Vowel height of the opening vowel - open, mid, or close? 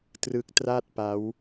close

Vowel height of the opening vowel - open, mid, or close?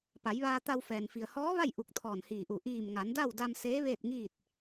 open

